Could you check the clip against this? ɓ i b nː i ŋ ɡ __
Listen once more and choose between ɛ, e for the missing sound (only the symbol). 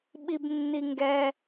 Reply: ɛ